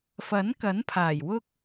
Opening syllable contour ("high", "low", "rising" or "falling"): rising